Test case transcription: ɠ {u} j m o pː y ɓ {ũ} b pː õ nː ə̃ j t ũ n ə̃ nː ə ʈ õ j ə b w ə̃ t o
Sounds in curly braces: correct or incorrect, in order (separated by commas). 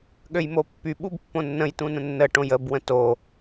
incorrect, incorrect